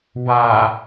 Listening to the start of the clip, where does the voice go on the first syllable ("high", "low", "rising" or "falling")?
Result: low